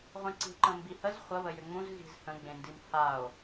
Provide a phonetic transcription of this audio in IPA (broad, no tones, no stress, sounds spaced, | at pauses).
ʁʷ ẽ ǀ i̤ ǃ ə̃ m b i h ə z χʷ ə β ə j ʏ ŋ͡m ũ z ɣ i̤ z h ə̃ ɡ͡b ẽ n d i m h a o̯